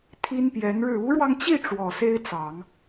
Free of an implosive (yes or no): yes